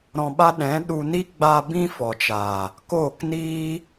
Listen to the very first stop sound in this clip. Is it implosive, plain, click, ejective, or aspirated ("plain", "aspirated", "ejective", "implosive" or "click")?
implosive